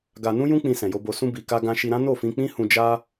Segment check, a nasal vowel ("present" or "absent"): present